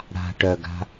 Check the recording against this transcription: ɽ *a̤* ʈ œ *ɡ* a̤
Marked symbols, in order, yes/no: yes, yes

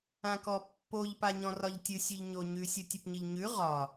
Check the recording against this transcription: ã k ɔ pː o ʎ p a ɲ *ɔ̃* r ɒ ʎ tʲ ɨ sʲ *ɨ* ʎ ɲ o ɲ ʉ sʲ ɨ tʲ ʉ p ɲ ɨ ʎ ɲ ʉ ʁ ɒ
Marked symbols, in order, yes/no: yes, no

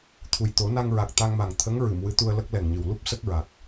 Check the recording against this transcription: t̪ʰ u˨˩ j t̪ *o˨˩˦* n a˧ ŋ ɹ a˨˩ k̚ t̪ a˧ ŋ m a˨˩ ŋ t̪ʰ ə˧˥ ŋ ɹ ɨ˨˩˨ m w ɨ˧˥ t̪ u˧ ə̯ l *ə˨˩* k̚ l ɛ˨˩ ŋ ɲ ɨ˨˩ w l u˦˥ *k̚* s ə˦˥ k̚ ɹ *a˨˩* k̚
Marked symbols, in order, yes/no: yes, no, no, yes

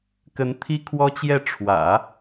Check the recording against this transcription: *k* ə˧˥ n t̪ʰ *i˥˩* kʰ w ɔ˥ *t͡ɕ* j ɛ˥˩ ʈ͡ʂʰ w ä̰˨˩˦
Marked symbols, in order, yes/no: yes, no, yes

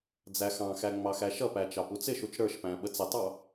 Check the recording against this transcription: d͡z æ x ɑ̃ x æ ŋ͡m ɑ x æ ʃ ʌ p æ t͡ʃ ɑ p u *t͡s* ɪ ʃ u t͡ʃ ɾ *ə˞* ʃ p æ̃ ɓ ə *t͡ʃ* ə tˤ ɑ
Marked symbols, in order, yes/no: yes, yes, no

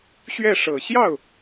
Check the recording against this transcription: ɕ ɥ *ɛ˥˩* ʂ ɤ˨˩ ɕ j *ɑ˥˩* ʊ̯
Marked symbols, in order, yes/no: yes, yes

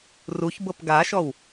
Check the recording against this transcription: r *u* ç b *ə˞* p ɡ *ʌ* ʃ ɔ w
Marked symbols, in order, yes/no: yes, no, no

